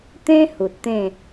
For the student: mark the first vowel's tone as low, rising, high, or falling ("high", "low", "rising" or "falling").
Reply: high